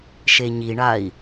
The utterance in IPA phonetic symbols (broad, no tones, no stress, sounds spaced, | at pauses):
ʃ e ɲ i ɳ a i̯